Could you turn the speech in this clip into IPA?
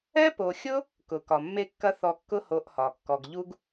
ɛ˥ p o˨ xʲ ʊ˥ | k ʊ˩ k ɒ˩ mː e˥ kː ɐ˥ θ ɔ˨ kː ʊ˦ h o˨ ʔ h ɒ˩ kː ɔ˨ ɡ ʎ u˥ ɡ

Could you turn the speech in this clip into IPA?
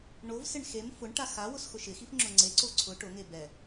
ɳ o v s ɪ ɳ x e m f ʊ ɳ ʈ a x a w ʊ s x ʊ ʃ ɪ x i f ŋ͡ǁ ʊ ŋ͡ǀ e ǀ o ǀʰ ʊ ʈ ʊ ŋ e b ɛ

